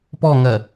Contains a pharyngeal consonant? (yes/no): no